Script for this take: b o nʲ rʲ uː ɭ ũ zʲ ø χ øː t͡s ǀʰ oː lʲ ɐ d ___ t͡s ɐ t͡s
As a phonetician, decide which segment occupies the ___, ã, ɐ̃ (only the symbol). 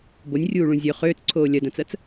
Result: ɐ̃